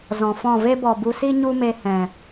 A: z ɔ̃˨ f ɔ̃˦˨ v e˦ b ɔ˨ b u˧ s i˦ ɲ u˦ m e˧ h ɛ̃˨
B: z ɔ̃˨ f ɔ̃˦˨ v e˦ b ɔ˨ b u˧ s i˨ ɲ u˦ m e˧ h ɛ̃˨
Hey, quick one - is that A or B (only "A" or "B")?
A